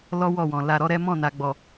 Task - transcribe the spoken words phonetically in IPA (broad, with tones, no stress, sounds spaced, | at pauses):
l ɔ˦ w ɔ˦˨ w ɔ̃˨ l a˧ ɾ ɔ˦ ɾ ɛ˦ m ɔ̃˦˨ n a˨ ɡ͡b ɔ˨